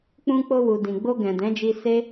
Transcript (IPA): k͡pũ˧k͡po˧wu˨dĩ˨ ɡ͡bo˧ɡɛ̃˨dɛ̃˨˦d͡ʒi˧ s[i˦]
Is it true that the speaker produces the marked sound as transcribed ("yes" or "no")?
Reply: no